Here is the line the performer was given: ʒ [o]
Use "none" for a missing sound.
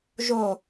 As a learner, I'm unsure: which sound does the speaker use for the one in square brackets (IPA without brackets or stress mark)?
o